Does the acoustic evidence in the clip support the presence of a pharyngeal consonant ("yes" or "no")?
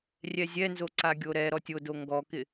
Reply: no